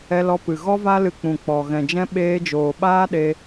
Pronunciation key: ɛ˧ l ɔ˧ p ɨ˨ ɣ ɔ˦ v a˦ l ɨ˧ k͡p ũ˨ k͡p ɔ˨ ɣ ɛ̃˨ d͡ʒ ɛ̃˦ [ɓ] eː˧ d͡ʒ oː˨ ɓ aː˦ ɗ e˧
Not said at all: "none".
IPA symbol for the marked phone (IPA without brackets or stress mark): ɓ